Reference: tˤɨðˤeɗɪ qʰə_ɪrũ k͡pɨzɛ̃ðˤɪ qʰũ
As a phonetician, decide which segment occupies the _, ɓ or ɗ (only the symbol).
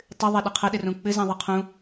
ɗ